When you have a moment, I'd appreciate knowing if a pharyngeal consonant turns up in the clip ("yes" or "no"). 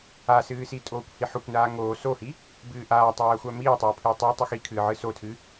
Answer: yes